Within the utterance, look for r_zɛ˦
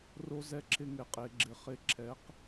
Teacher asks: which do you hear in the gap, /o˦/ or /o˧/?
o˦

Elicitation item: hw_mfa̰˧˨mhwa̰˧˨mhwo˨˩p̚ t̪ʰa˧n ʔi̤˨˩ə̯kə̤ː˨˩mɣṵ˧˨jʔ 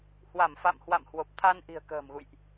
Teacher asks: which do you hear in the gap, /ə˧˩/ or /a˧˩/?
a˧˩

